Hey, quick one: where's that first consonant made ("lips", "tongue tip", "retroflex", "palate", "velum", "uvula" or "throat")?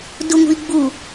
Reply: tongue tip